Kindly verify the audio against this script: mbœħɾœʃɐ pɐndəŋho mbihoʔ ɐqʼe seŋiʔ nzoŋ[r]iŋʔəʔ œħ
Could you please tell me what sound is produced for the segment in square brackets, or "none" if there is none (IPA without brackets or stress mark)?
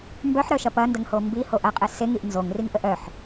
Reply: r